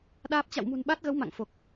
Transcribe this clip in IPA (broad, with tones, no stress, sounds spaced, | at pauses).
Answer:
ɗ aː˦˥ p̚ t͡ɕ a̰˧˨ w m ṳ˨˩ n ɓ a˦˥ t̚ ɣ ə˨˦ w m a̰˧˨ ŋ f o˨˩ k̚